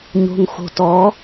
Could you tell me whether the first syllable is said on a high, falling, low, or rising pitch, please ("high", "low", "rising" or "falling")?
low